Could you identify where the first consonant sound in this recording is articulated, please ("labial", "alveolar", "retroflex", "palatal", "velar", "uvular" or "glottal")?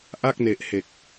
glottal